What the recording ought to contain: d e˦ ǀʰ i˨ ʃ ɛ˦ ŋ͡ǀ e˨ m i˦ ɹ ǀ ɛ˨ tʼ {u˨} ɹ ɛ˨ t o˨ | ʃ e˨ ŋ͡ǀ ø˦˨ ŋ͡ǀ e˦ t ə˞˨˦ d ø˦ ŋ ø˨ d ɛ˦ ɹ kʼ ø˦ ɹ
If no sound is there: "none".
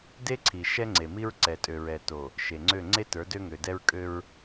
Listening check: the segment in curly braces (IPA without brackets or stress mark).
ø˨